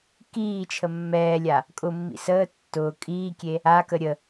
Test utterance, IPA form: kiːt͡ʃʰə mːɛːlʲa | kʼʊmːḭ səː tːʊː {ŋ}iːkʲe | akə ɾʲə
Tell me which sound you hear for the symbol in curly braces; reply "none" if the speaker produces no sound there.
kʼ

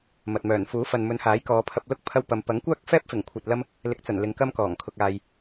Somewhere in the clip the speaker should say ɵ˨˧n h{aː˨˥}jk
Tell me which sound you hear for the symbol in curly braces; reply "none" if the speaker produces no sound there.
aː˨˥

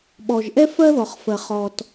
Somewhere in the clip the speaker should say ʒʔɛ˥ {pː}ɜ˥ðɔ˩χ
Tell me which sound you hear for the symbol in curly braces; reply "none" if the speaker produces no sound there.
f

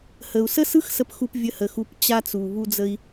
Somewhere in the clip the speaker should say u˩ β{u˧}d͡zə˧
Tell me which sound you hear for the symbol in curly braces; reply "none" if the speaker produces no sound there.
u˧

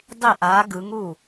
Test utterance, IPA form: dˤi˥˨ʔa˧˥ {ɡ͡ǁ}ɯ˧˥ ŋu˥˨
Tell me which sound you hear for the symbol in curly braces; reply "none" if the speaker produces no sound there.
ɡ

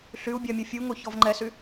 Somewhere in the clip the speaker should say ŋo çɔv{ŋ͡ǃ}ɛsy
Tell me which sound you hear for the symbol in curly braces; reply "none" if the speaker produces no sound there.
ŋ͡ǃ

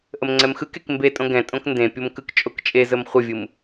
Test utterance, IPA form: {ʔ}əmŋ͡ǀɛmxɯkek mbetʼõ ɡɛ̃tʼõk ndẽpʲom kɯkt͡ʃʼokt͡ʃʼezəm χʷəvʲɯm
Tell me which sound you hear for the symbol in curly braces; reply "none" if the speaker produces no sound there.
ʔ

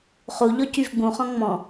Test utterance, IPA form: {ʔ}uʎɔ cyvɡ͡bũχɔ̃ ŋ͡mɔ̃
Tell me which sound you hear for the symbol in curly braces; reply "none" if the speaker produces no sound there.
χ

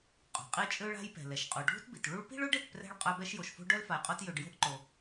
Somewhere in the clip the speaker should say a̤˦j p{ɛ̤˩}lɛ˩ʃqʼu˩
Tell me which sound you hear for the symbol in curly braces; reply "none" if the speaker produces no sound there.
ɛ̤˩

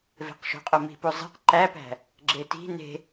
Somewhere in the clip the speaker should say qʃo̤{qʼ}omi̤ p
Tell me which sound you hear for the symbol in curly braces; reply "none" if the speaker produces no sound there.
qʼ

